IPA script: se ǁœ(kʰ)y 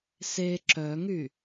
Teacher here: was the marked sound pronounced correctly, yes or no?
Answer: no